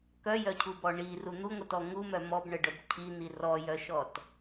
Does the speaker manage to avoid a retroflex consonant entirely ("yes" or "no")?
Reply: no